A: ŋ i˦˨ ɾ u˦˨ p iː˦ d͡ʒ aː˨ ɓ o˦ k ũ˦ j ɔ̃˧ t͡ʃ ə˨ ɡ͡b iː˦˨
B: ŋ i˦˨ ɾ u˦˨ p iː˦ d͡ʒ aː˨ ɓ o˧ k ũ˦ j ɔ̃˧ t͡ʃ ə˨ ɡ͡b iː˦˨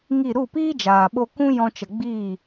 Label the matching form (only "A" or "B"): B